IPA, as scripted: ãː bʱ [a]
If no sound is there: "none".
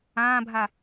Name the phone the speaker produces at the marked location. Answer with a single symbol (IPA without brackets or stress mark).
a